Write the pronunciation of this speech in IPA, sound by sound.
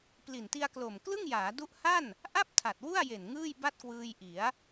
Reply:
p l i˨˩ n t i˧ a̯ k l o˨˩ m k l ɯ˥˩ ŋ j aː˩˦ d u˦˥ ʔ h a˥˩ n | ʔ a˥˩ p̚ tʰ a˨˩ t̚ w u˥˩ a̯ j e˨˩ n ŋ ɯː˥˩ j b a˥˩ t̚ k w ɯː˧ j ʔ i˩˦ a̯

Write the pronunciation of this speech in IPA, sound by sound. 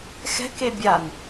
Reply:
x ɛ̤ k e bʲ a n

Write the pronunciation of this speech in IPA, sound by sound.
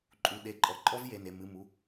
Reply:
ǃʼ u˩˧˩ ɗ e˨˩˦ ǃʼ ɔ˩˧˩ ǃʼ ɔ˦˥ v j e˩˧˩ n e˩˧˩ m ɨ˩˧˩ m u˩˧˩

